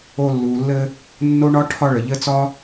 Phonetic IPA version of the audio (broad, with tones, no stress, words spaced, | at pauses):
o˦ lːuː˨lːɘ˦ | nːo˥ɳɒ˥ ʈʰɒ˦ɭɘ˩ʎɘ˦t͡sɒ˥